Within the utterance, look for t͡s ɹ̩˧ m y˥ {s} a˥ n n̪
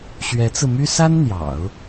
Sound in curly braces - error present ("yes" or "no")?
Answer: no